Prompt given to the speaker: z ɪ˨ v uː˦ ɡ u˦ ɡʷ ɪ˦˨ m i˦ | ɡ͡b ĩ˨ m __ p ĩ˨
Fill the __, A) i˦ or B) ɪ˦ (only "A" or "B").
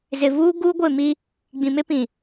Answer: B